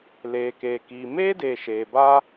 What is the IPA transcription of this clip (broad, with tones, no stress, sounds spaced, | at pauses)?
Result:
l eː˨ k eː˨ k iː˨ m eː˦ d eː˨ ʃ eː˨ b aː˦